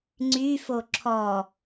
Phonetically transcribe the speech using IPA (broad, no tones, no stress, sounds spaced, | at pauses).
ŋ͡ǀ y f o ǁʰ ɔ